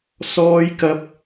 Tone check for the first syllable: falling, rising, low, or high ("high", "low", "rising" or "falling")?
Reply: high